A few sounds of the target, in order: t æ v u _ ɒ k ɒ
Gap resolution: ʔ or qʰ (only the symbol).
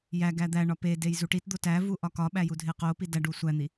ʔ